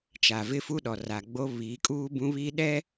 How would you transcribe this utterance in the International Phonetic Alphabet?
t͡ʃ a˨ v ɪ˦ f u˦ ɗ ɔ˨ r a˨ ɡ͡b o˦ β iː˨˦ kʼ uː˦ b ũ˦ β iː˦ ɗ ɛ˦

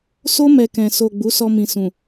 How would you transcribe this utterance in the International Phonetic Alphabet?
s o˦ m ɛ˧ k ɛ̃˨ s o˨ ɡ͡b u˨˦ s ɔ˧ m ĩ˨ s ũ˨

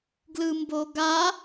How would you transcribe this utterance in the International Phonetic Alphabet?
ɡ l ɯ m b o ɡ a

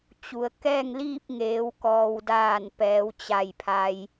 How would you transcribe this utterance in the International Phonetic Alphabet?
t͡ɕ u˩ ə̯ k ɛː˥˨ ŋ l iː˥˨ p̚ ŋ eː˩˧ w k ɔː˩ w d aː˧˩ n p ɛː˩˧ w t͡ɕ a˧˩ j pʰ a˧ j

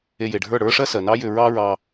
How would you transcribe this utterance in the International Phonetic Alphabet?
e˧ j e˩ ɖʱ ə˞˥˩ ɽ ə˞˥ ʂ ɜ˥ s ɜ˩ n ɑ˥ j ʏ˧ ɹ ɑ˥ ɹ ɑ˧

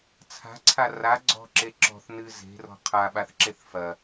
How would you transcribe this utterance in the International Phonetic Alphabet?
t͡sʰ a̤ ǀʰ a r a ɡ͡ǀ ɔ̤ ǁ e ǁ ɔ̤ θ n ɨ z e̤ r ɔ̤ qʰ a ɓ a θ ǁ e θ f ɐ

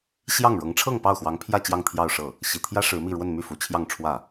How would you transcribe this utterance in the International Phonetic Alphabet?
ɕ j ɑ˥˩ ŋ ɻ ɤ˧˥ ŋ ʈ͡ʂʰ ɤ˥˧ ŋ p ɑ˥˩ ʊ̯ x w ɑ˧˥ ŋ pʰ j ä˥˧ t͡ɕ j ɑ˥˧ ŋ t̪ʰ j ɑ˥˧ ʊ̯ ʂ ɤ˥˩ | ɕ i˨˩ t̪ʰ j ä˥ ʂ ɻ̩˧˥ m i˥˧ ɻ w ə˥˧ n m y˥˩ f u˧˥ t͡ɕʰ j ɑ˥˧ ŋ ʈ͡ʂʰ w ä˥˩

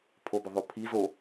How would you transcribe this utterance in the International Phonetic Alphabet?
pʰ o b ɵ ðˤ o pʰ i z o

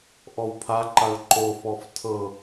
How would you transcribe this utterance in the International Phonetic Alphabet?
ʔ ɔ w pʰ a ǃ a ɭ ǃ o f ɔ f tʰ ɤ

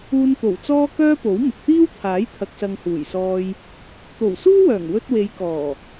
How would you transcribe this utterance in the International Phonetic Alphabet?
uː˧ n t̪ o˨˩ w t͡s ɔː˥ k œː˥ p o˨˥ w m ɪ˨ k̚ t̪ iː˥ w t̪ʰ aː˨˥ j t̪ʰ ɐ˨ k̚ s ɐ˨ ŋ h uː˨˩ j s ɔː˧ j | t̪ o˨˩ w s uː˥ w œː˨˩ ŋ w ɵ˧ t̚ w e˨˧ j k ɔː˨˩

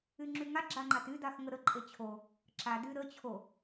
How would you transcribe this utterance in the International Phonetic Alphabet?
y ŋ͡ǁ y ŋ a ɡ͡ǁ a ŋ͡ǃ a t y d a x ŋ ə ɾ ə ǃʼ e t͡ɕʰ o | ǁ a d y ɾ ə t͡ɕʰ o

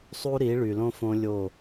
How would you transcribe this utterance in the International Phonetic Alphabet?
sˤ u˦ ɾ i˨˦ ɭ y˨ l õ˦ f õ˦ lʲ o˦˨

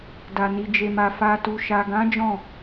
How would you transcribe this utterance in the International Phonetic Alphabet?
d a˨ n i˨ d͡ʒ e˨ m a˨ f a˨ t u˨ ʃ a˨ ɡ ã˨˦ d͡ʒ ɔ̃˦˨

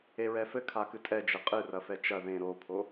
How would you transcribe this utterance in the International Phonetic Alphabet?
e ɹ ɛ f ɘ kʰ a k ɨ tʼ ɛ d͡ʒ ɘ qʼ ɨ r ɐ f ɛ t͡ʃ ɐ ð ẽ ɾ o pʰ o

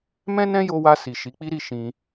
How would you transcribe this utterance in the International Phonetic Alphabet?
m ɛ̃˦ n ɛ̃˦ j o˧ w a˧ s i˨ ʃ i˨˦ k͡p i˦ ɾ i˦˨ ʃ ĩ˧

